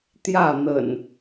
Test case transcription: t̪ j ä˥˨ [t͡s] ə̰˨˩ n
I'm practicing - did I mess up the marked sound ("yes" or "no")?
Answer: yes